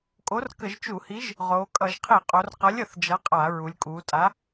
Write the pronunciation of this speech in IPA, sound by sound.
kʼ o˨˥ r k ə˧˩˧ ʒ t͡ʃ u˧˩˧ h i˨˥ ʒ | ʁ oː˩˧ kʼ ʌ˧˩˧ ʒ qʰ i˧˩˧ qʼ o˩˧ r q ʌ˨˥ lʲ ə˧˩˧ θ d͡ʒ ʌ˨˥ qʼ a˧˩˧ ɹ u˩˧ lʲ kʼ uː˩˧ tʼ a˨˥

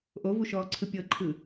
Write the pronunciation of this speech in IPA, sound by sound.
ʔ o v u ʃ ɔː ǀʰ ɯ pʲ ɤ ǃʰ ɯ

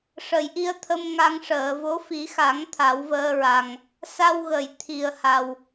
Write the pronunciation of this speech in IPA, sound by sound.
ʂ ə˨˩˨ j ʔ i˧ ə̯ t̪ʰ ə˧ m ŋ a˧ ŋ ʂ əː˨˩˨ v o˧˥ f i˨˩˦ x a˨˩˦ ŋ t̪ʰ a˨˩˦ w v əː˧ ɹ a˨˩ ŋ | s a˧ w ɣ ə˨˩˨ j t̪ʰ i˨˩ ə̯ h a˨˩ w

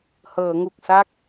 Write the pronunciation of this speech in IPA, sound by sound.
h ɤː˩˦ ŋ u˨˩ k̚ s a˥˩ k̚

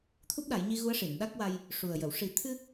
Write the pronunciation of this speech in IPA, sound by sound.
t̪ʰ u˦˥ p̚ ɗ a˨˩˦ j ɲ i˧ ɣ u˧˥ ə̯ ʂ i˨˩˨ n ɗ a˦˥ k̚ w a˧ j | ʂ u˨˩ ə̯ j ə˨˩˨ w ʂ i˨˩˦ t̪ʰ ɨ˧

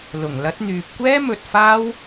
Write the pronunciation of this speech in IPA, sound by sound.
l ʊ˨˩ ŋ l ɐ˨˥ t̚ n̪ yː˨ p̚ kʷ ɛː˥ m ɵ˧ t̚ f aː˥ w

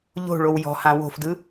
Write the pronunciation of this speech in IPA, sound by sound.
ʎ o̤ ɭ o w j ɔ̤ h ã w o̤ f d ɯ

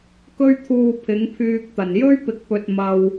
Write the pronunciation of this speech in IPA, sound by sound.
k ɵ˥ ɥ t̪ʰ uː˧ pʰ ɪ˨˥ ŋ pʰ yː˧ k̚ t̪ ɐ˨˩ n j ɵ˥ ɥ p ɪ˨ k̚ p ɵ˨ t̚ m ɐ˧ w

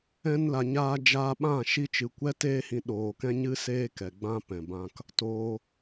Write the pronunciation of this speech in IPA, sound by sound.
ɛ̃˧ n l a˨ ɲ aː˧ d͡ʒ aː˧ ɓ ã˦˨ ʃ i˧ t͡ʃ ɨ˨ kʷ ɛ˦ t eː˦ h ĩ˧ ɗ oː˨ k ɛ̃˦ ɲ ɨ˦ s eː˦ k ɛ˨ ɡ͡b ã˦ p ɛ̃˨ b ã˧ k | t oː˧

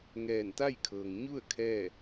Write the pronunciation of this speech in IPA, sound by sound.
ŋ ɛː˧˩ n t̪ a˥˨ j kʰ ɤː˩ ŋ ɲ u˥˨ ə̯ kʰ ɛː˥˨

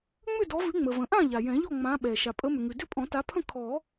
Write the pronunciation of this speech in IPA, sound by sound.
ŋ͡m ʏ˥˨ d ɔ˨˦ v ʉ˨˦ ŋ͡m ə˩ v ə̃˩ ʔ ã˥˨ ʎ a˩ j ɛ̃˨˩˦ ʎ ɔ˥˨ ŋ͡m ã˨˦ ɓ ɛ˩ ʃ a˩ pʼ ə˨˦ m ʏ˩ ŋ ʉ˩ d ʏ˥˨ pʼ ɔ̃˨˩˦ t a˨˦ pʰ ə̃˥˨ kʰ ɔ˨˩˦

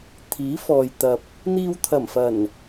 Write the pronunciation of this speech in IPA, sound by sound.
t̪ʰ iː˨˥ f ɔː˨ j t̪ ɐ˨ p̚ | n̪ iː˧ w t̪ʰ ɐ˨˩ m f ɐ˨˩ n

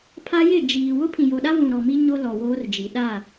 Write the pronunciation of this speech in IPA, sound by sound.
pʰ a˦ j ɪ˦˨ d͡ʒ iː˨ w ʊ˦ pʰ ĩ˨ j o˨ ɗ a˦ v ũ˨ ɾ ɔ˨ m i˦ ɲ o˦ l ɔ˨ w oː˦ r d͡ʒ i˨ ɗ a˦˨

